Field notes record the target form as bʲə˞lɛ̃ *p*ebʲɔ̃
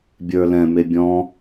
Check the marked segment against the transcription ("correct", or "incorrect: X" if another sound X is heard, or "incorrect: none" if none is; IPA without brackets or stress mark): incorrect: m